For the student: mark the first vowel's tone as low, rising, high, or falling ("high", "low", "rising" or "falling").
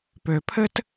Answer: low